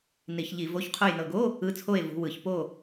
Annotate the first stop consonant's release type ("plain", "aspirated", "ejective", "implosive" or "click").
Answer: aspirated